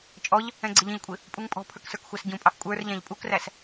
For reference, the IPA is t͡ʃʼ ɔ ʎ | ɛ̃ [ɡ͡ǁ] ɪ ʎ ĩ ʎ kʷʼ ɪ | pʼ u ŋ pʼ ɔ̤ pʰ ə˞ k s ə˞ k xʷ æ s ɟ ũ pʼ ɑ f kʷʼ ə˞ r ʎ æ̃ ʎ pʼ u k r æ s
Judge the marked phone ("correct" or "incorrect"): incorrect